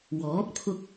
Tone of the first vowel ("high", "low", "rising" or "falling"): rising